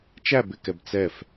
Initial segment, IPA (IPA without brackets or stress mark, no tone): t͡ʃ